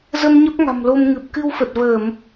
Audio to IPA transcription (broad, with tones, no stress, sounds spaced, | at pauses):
z ə˧ m ɲ ə˦˥ p̚ ŋ a̤˨˩ m l o˧ m ŋ ɨ˨˩ p̚ k ɨ˧ w f ə˨˩ t̚ v əː˧˩˨ m